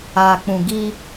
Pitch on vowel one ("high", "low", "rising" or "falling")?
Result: low